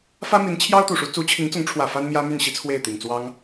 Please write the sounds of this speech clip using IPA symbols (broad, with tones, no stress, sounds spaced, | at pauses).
f ä˥ m i˧˥ n t͡ɕʰ j ɑ˥ ʊ̯ t̪ u˨˩ ʂ u˧˥ t͡s u˧˥ t͡ɕʰ i˧˥ ŋ t͡s ʊ˧˥ ŋ ʈ͡ʂʰ w ä˨˩ f a˥ n m j ä˥ m y˥˩ n ɕ i˥ t͡sʰ w e˥˩ ɪ̯ t̪ i˨˩ ŋ t͡s w ɑ˥ ŋ